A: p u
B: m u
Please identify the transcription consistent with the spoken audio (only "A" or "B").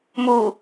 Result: B